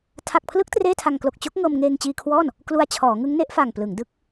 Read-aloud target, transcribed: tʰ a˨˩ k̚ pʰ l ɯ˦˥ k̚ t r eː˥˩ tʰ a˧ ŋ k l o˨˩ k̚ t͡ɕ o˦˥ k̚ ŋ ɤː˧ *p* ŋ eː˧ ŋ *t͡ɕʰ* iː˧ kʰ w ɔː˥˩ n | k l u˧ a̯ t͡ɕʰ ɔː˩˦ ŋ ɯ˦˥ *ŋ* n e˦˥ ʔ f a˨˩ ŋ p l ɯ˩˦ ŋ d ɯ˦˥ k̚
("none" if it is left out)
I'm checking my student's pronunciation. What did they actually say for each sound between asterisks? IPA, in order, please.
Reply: m, t͡ɕ, ŋ

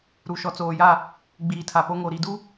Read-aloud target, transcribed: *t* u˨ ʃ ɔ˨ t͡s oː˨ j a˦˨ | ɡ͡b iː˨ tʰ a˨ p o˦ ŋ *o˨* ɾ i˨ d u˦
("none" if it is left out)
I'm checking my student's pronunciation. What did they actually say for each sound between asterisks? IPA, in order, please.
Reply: ɾ, o˨

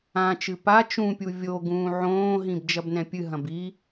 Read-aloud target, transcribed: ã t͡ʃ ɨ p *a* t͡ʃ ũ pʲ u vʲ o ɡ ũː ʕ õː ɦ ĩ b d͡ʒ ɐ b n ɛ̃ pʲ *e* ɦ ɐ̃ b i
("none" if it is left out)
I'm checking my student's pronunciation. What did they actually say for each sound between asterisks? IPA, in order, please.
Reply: a, ɨ

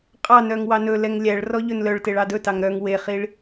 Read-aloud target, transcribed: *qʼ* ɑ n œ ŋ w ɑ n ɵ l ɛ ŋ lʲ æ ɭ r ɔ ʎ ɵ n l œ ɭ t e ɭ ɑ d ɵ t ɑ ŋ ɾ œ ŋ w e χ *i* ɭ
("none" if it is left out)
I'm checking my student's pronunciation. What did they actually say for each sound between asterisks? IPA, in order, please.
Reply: qʼ, i

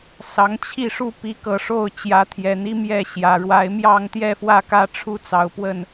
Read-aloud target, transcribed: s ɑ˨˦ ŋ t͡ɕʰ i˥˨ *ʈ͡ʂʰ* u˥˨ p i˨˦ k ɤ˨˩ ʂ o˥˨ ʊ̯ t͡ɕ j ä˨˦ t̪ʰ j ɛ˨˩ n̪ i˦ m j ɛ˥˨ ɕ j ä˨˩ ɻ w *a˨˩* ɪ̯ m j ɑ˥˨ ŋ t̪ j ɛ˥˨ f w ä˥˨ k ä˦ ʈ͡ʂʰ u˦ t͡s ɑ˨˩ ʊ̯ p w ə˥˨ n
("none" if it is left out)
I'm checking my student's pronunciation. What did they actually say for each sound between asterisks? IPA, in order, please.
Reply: ʂ, a˨˦

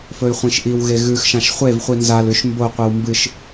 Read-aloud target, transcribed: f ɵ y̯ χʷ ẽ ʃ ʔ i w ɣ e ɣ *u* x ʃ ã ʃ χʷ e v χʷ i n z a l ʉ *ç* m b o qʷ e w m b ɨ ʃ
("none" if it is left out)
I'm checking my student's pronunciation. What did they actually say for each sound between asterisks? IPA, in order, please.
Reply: ʉ, ʃ

